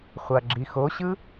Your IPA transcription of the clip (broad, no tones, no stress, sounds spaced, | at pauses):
χʷ a ɡ͡ǁ i x o ɕ ɯ